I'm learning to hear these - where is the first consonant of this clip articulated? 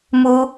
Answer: lips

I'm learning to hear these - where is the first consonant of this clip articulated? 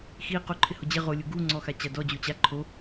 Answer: velum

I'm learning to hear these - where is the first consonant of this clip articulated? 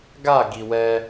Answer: velum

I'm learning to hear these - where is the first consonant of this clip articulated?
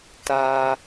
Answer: tongue tip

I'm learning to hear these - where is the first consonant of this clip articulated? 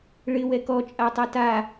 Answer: retroflex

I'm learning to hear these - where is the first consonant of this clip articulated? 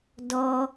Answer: tongue tip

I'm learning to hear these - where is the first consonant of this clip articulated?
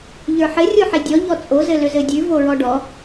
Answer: palate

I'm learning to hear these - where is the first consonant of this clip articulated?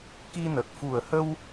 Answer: velum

